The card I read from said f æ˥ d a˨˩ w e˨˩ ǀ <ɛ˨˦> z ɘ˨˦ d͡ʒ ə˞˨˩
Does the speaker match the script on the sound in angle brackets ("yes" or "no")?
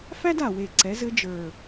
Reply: yes